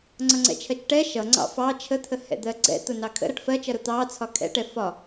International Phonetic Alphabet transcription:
ŋ͡ǀʌŋ͡ǀɛ̰t͡ʃʰɜt͡ʃʈɛ ʃʌ ŋ͡ǀɑ̰fɑ t͡ʃʰət̪ʰə hɛ̰d̪ɜɡ͡ǀɛ̰ t̪ʊnɑkʰə̰ ɾʌʈfɜt͡ʃʌɾʊ t̪ɑ t͡sʰɒkʰɛ̰ʈɛ fɒ

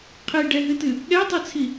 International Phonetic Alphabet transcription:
qʰiɖɛɦɨtɨ | ɠɛtˤɛt͡sʰi

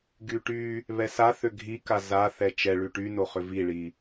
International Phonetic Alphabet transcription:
ɡyʈy | βɛsaθʏ ɡʱi kaza θɛt͡ʃɛɭy ʈynoχʏ viɭi

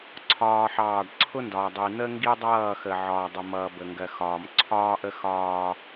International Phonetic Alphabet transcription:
ǀʰɒː˦ħɑː˦˨ɖ ǀʰʊ˦ndɒː˨ dˤi˨n̪ə˦ ŋɡi˦dˤʌː˦˨xə˨ ʕɒː˨dˤʊ˨mʌː˨ bə˨ŋɡɜ˨xɒː˨m ǀʰɒː˦ʔə˦ xɒː˦

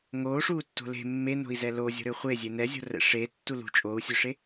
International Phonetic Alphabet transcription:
ŋoːʂuːtːo̤ le̤ mːeno̤i̯zɛ lozʲo̤ɾø χʷezʲe nɛzʲo̤rɛ̰ ʂeːtːu lṳ t͡ʃʼoːu̯sʲøʂe

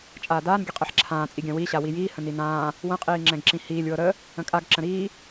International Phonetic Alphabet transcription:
t͡ʃʼaːdaːnɡʲə qʼɛħǁʰãːt͡sʼiɡʲã wiɕa wijiːhə̃ ninãː | wə̃qʼiː ŋ͡ǁɛ̃ɡǁĩhiːlʲwɤ ɾə | ə̃kʼaɡǁə̃ ɾiː

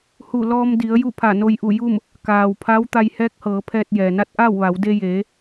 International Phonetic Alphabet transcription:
hu˧˩lɔː˧m di˩˧ə̯ ju˥˨pʰa˧˩no˧j ʔu˧˩ju˥˨m | kaː˩wpʰa˧˥w t̪a˧jhɛː˧˥k̚hɤː˩˧pʰɛː˧t̚ jɛː˩na˧˥t̚ʔaː˥˨wʋa˩˧w de˧jeː˩˧

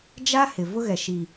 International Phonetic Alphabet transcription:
d͡ʒa˦ hɪ˨vʊ˦ɣɛ˨ ʃi˨

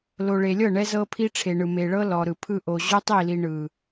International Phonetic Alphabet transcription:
lo˨ɭe˨lʲɤ˦˨ ɳɛ˦ zɤ˦pʰi˦ʈ͡ʂʰe˨ɳɯ˨ me˨ɭɤ˦ lɔ˨ɾɯ˨pʰɯ˦ ʔo˨ ʑo˦tˤi˦˨li˨ ɳɯ˨

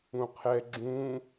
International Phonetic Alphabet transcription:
ũqʰɛ ɡ͡ǁũ

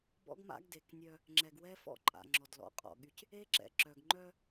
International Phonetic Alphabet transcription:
bɔ̰˦ɡma̰˦ɡde˨knʲœ˦ | ŋ͡ǁɛ˨ɡwɛ˦fɔ̰˦˨ǃʼa̰˨ ŋ͡ǁɔ˨dlɔ̰˨˦qʼɔ̰˨ɠy˦c | e˦ǁɛ̰˨ ǁœ˨ɡ ŋ͡ǃœ˦

